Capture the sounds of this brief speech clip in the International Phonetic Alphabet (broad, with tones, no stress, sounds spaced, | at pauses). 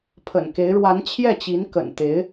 pʰ ə̰˨˩ n k e˧˥ ɪ̯ ɻ w a˧˥ n t͡ɕʰ j ɛ˥˩ t͡ɕ i˧˥ n k ə̰˨˩ n t̪ e˧˥ ɪ̯